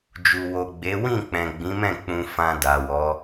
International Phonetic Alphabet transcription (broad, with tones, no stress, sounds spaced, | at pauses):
d͡ʒ u˨ w o˨ ɡ͡b e˨˦ w ĩ˦˨ k͡p ɛ̃˨ ɡ͡b ĩ˨˦ m ɛ̃˦˨ k͡p ũ˧ f ã˧ d a˨ w ɔ˨˦